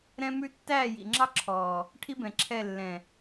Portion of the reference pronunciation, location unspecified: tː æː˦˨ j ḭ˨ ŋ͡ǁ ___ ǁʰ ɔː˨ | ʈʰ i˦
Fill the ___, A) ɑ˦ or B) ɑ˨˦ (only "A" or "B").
A